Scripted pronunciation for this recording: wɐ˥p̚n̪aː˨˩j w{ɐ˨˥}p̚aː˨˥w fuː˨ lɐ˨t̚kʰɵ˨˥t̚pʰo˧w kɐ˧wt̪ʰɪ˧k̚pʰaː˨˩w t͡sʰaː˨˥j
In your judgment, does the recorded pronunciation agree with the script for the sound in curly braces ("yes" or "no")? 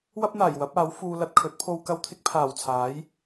yes